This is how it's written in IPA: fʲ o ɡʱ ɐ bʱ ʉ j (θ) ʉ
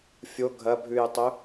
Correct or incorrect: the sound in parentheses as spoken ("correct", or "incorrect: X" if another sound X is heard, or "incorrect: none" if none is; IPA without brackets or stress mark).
incorrect: tˤ